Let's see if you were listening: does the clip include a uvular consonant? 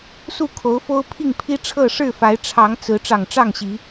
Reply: no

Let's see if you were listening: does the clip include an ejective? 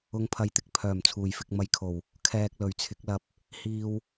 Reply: no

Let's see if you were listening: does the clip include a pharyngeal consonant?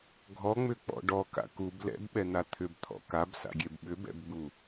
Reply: no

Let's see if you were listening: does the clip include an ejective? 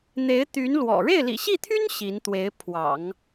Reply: no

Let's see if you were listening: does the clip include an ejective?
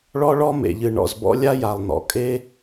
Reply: yes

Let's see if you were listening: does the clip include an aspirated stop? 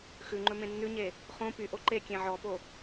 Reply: no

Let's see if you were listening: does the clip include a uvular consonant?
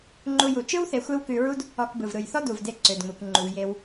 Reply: no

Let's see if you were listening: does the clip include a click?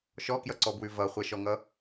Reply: yes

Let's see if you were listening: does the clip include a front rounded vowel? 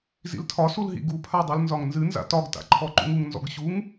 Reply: no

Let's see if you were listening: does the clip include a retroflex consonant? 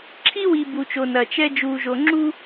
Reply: no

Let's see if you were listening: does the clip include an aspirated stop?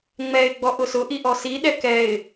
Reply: no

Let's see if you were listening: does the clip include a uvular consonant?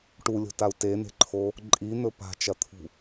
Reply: no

